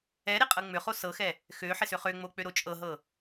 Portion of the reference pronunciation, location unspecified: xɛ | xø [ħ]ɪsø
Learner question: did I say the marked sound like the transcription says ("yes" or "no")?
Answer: yes